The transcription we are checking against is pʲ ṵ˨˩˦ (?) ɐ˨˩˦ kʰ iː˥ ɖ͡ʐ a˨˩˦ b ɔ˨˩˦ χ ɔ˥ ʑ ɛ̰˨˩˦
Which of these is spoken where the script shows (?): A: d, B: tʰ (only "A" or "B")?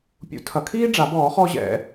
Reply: B